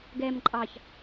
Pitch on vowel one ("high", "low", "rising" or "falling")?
low